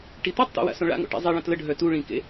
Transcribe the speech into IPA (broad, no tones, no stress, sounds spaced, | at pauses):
ʈ i t̪ o tˤ t̪ ḛ w a̰ s õ ɭ a̰ ŋ o̰ ʈ ḭ zˤ i ɭ ə̃ t l ə ɖʱ œ t u ɭ ĩ k ḛ